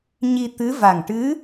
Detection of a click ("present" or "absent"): absent